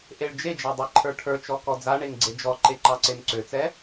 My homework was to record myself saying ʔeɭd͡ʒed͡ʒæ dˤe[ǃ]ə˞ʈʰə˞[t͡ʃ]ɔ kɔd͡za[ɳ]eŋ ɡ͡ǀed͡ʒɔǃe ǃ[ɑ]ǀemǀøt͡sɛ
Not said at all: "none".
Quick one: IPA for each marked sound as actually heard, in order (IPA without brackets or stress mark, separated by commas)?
ǃʰ, t͡ʃ, ɳ, ɑ